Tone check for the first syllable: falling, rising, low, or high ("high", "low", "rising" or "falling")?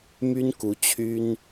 high